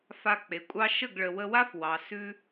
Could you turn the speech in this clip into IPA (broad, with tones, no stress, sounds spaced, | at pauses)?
f a˧ k͡p e˨ kʷʼ ɑ˦ ʃ ə˦˨ ɡ ɭ ə˨ w ə˧ w a˦ f w ɑ˨ s ʉ˦